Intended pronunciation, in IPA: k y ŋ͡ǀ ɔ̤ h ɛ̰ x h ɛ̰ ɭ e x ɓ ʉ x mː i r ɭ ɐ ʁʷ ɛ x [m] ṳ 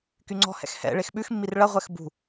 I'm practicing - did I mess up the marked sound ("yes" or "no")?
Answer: yes